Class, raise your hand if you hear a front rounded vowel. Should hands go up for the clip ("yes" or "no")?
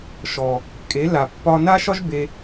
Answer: no